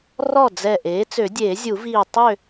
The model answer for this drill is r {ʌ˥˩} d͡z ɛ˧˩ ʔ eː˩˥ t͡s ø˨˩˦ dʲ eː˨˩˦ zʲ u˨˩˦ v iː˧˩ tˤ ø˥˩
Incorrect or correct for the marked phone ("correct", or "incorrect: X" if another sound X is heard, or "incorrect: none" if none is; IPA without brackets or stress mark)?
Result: incorrect: ɔ˥˩